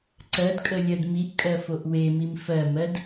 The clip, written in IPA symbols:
ǀɜdkʼə lʲɜdmiʔkʼɜ foʔwemim fɜmɜd

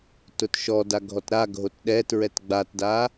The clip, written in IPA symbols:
tʊtʃɔda ɡʱɔtɾaɡʱot ɗɛtɹɛt ɡ͡batda

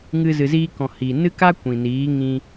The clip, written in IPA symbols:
ŋɨ˧ zɨ˨ziː˧kɔ̃˨ hi˨ nɨ˦ ka˦kʷĩ˨ niː˨˦ŋĩ˧

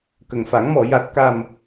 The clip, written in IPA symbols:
kə˨˩ŋfa˨˩˦ŋmɔ˨˩˨ ja˨˩t̚ka˨˩m

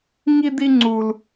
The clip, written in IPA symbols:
ŋi˥d̪i˥ŋ͡ǀu˦l

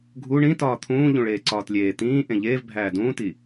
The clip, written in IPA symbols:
ɡʱu ɳĩ tɒːt̪ʰũː ʎũɭeːǀɒːtlʲeː t̪ĩː ʔẽʎeːvbʱæː dũːti

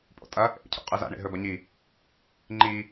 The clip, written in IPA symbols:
pʼo̰tʼɐ | ʔḛcʰo̰ qʼɨza̰ ɳḛɦɵbɐɲi | ŋ͡ǃi

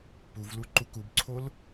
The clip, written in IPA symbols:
puvlu ǃukubǀʰol

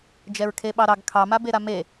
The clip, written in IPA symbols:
d͡ʒɛɹkʰeɓɑɾɑɡ kʰɑmabeɾa me

